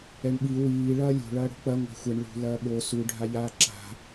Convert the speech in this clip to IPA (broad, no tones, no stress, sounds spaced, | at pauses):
ɛ ɳ ɓ i w iː ɭ ɐː lʲ o̤ ɭ ɐː ɽ o̤ k͡p ɐ ŋʷ a̤ xʷ ɛ ɳ ɭ ṳ l ɐː ɓ o s u ɖʱ a ʎ aː ǁ a̤